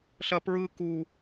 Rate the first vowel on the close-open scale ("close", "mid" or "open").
open